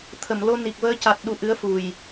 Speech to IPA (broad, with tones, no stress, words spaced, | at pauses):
t̪ʰə˨˩˨mlo˧ ni˨˩k̚vəː˧ ca˨˩t̚ɗu˨˩ ʔɨ˧˥ə̯fu˨˩j